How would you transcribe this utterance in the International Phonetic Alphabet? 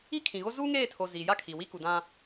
i˦ kʰ ĩ˨ ɣ o˦ z uː˦ ŋ eː˦˨ tʰ o˨ z i˨ j a˦ kʰ i˨ w i˦ k u˨ d ã˦

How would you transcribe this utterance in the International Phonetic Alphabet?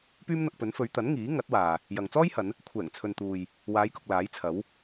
p yː˥ m n̪ ɐ˧ k̚ p ɵ˨˥ n f ɵ˨˧ ɥ t̪ ɐ˨˥ n ŋ iː˨˥ ŋ ɐ˨˥ t̚ w aː˨ | j ɐ˨ ŋ t͡s ɔː˥ j h ɐ˨˧ n | kʷʰ ɛː˨˩ ŋ t͡sʰ ɵ˨ n t̪ uː˨ j | w aː˨˧ j k ʊ˨ k̚ l aː˨˥ j t͡sʰ ɐ˨˥ w

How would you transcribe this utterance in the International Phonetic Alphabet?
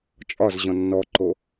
t͡ʃʼ ɒ z ʑ ɔ̃ nː ɔ ǃ o

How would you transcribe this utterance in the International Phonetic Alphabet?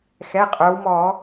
x ɛ˩˧˩ qʼ œ˩˧ w m ɔː˧˩˧

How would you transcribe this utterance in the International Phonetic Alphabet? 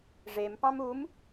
ʐ e m p ɑ̃ m u m

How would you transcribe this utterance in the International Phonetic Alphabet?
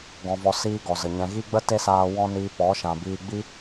ɡ ɔ̃˧ v ɔ˧ s iː˦ ɡ ɔ˨ z ə˨ ɲ ɛ̃˨ ɣ i˦ ɡ͡b ə˦ t e˦ s aː˧ w ɔ̃˦ n iː˧ p ɔ˨˦ ʃ ã˨ b iː˧ ɡ͡b i˦

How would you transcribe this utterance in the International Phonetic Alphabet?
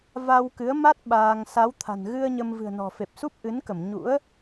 v a˧ w k ɨ˨˦ ə̯ m a˦˥ t̚ ɓ aː˧ ŋ s a˨˦ w t̪ʰ a̤˨˩ n ɣ ɨ˧ ə̯ ɲ ə˧ m v ɨ̤˨˩ ə̯ n ɔ̤˨˩ f e˨˩ p̚ s u˦˥ p̚ ʔ ɨ˨˦ n k ə˧˩ m ɲ ṵ˧˥ ə̯

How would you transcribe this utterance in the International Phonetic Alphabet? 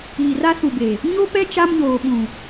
iː˨ r a˦ s u˨ b e˨ | ɲ o˦ p ɛ˦ t͡ʃ a˦ m ɲ oː˨ ɓ ũ˨

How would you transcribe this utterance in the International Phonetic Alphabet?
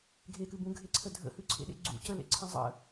ɡʱ e k ɨ b ũ ɡʱ e ǀʰ ə dʱ ə̰ h ʉ ǀʰ ḛ ɗ ḛ ɡ͡ǀ ṵ c ə l ḛ ǀʰ ə̃ zˤ ə̰

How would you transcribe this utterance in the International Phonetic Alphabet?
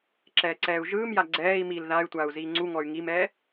ǁ ɛː ǀ ɛː u̯ ʒ ɯː m j a ɡ͡ǀ ɛː i̯ m iː l ð a y̯ tʷ a u̯ z iː ŋ͡ǀ u ŋ ɔ y̯ ŋ i m ɛː

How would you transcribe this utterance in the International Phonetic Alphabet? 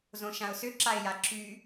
z õ ʃ ã ʊ̯ s ʏ ǁ a ɪ̯ j a ǁ y

